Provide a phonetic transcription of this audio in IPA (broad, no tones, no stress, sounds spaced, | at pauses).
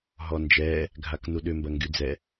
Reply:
ɦ ɔ n d͡ʒ ɛː | ɡʱ a k n u ɗ ʏ m b ɐ ŋ ɡ y d͡z ɛ